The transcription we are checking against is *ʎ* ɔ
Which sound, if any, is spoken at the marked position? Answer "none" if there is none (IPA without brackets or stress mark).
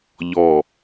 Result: ʎ